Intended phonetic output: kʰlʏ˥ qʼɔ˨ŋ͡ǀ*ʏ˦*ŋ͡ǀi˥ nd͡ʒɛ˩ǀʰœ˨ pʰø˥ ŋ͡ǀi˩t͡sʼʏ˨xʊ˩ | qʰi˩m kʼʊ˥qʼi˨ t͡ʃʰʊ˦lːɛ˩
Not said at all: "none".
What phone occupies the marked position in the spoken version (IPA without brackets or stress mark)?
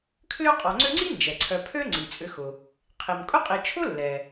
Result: ʏ˦